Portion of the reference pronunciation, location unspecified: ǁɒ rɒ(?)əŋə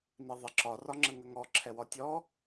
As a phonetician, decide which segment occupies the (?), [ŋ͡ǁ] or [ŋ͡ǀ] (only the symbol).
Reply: ŋ͡ǁ